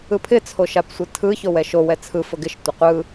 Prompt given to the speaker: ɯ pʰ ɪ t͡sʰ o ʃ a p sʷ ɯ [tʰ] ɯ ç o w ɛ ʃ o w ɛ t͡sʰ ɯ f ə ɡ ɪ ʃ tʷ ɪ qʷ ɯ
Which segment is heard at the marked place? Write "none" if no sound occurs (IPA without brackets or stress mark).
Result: tʰ